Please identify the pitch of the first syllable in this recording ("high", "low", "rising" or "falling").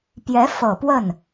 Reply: rising